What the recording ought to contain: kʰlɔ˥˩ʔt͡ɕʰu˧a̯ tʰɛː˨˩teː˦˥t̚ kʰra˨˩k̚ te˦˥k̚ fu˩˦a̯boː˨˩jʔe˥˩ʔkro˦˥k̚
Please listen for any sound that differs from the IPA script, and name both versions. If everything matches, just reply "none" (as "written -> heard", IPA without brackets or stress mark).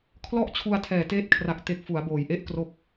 none